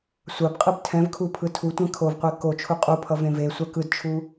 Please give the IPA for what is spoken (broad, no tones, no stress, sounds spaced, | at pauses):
sʷ a b qʼ ɯ b tʰ ɛ̃ v kʰ u pʰ ɯ tʰ u tʷ ɛ̃ kʰ o v qʷ e k o t͡ʃʰ u qʼ u pʰ ʌ v ẽ v e sʷ a k ɯ d t͡ʃʰ u